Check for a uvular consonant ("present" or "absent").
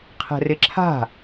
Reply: present